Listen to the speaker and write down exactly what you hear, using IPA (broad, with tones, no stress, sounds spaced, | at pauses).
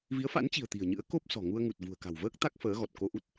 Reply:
v i˨˦ ə̯ f a̰˧˥ n t͡ɕ i̤˨˩ ə̯ t̪ i̤˨˩ ə̯ ɲ ɨ̰˧˥ ə̯ k o˦˥ p̚ s ɔ̤˨˩ ŋ u˧ ə̯ ŋ u˨˩ t̚ v ṳ˨˩ ə̯ k a̤˨˩ w v əː˦˥ k̚ t̪ a˦˥ k̚ f əː˨˦ ɣ ɔ˨˩ t̚ k o˧ ʔ u˦˥ t̚